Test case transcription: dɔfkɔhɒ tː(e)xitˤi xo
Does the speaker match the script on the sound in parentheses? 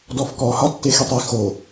yes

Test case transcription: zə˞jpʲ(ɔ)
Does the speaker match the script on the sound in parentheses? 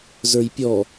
yes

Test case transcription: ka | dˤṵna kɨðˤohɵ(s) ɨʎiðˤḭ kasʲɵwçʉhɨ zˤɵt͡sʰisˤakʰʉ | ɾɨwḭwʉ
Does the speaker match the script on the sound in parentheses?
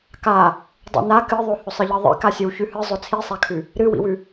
no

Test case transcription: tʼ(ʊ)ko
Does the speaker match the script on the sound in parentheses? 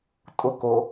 yes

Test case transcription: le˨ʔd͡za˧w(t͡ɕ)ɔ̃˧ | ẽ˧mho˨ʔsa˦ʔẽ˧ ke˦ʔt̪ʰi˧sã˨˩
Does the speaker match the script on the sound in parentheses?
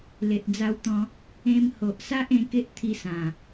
no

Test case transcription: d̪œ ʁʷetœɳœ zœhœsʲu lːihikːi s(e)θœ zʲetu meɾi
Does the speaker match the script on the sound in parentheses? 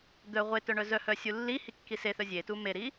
yes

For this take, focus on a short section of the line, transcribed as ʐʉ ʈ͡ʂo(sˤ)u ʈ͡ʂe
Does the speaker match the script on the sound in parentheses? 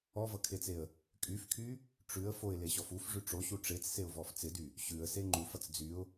no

